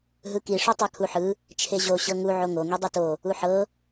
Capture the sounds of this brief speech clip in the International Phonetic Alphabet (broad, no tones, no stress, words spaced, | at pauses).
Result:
ɦɯki ʂotˤakʰuħɯ | t͡ʃʰeʑo ɕɤŋu ʕoŋo ŋidˤito | uħɤ